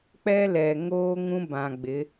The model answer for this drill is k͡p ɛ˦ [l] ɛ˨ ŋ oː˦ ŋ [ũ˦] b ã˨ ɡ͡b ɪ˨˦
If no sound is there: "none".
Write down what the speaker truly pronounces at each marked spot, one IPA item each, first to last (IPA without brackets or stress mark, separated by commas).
l, ũ˦